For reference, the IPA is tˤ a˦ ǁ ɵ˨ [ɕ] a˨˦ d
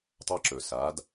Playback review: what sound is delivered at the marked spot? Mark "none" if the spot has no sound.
s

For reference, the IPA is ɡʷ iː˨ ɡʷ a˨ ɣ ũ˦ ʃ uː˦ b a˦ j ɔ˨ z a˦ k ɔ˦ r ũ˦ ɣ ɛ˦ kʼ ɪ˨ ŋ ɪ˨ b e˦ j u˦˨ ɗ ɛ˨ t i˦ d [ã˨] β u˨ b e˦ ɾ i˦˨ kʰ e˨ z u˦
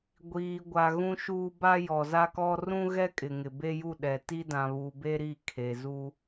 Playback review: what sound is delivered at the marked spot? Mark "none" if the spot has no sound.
ã˨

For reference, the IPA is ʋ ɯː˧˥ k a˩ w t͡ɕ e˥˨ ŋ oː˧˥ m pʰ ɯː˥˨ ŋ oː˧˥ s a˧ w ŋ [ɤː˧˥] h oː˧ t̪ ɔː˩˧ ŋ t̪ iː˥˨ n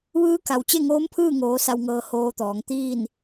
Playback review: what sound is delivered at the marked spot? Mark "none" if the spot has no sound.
ɤː˧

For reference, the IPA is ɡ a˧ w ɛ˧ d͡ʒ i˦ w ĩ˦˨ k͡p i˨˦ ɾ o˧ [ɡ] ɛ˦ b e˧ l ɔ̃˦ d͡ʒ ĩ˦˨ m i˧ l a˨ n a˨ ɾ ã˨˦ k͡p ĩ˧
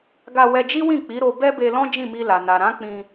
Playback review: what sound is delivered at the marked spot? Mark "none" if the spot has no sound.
b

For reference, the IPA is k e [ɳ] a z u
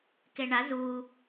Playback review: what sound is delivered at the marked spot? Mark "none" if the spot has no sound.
ɳ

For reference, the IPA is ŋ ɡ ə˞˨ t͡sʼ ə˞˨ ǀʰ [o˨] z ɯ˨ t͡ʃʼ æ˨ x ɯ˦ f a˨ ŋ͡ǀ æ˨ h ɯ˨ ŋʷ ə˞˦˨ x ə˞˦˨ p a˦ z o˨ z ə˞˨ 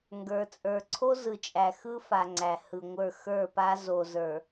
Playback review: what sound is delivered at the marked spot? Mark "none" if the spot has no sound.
o˦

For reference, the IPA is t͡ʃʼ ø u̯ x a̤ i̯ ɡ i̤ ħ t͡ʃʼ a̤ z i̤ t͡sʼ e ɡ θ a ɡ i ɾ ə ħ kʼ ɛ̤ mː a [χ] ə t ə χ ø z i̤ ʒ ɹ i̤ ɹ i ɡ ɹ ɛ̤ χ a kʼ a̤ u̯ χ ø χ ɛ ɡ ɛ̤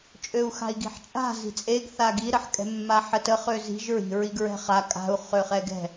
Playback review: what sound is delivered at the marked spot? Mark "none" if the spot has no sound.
ħ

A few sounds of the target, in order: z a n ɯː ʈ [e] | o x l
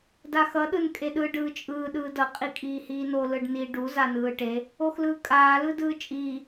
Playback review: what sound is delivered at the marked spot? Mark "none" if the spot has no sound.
e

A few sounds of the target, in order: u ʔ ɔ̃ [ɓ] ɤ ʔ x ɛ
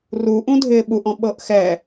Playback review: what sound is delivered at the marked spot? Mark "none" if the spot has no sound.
ɓ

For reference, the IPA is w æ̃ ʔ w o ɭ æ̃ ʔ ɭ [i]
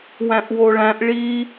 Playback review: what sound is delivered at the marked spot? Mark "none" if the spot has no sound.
i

